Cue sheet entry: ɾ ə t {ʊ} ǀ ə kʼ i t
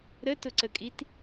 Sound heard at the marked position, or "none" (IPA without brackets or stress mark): ʊ